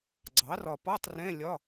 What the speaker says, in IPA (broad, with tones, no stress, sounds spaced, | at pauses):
ɡ͡ǀ ɑ˩˥ r ɒ˨ p ɒ˧˥˧ tˤ r ɛ̃˧˥˧ lʲ ɒ˧˥˧